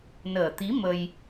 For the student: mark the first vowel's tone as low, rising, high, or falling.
low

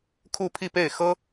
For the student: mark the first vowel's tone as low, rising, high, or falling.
falling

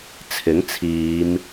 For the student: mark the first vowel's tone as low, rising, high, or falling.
rising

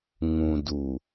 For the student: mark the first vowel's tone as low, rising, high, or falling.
low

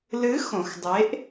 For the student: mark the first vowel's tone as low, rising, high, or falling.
rising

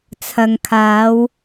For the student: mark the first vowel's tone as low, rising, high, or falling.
low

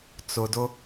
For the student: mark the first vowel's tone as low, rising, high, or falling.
low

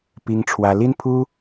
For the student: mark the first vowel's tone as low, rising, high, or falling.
high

